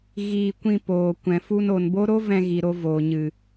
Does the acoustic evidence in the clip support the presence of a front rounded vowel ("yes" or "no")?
no